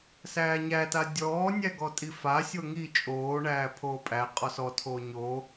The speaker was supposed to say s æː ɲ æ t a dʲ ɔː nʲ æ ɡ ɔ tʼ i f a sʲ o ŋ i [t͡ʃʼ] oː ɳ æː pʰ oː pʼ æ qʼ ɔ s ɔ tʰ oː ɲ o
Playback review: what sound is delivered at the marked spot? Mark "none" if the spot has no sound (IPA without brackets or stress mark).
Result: t͡ʃʼ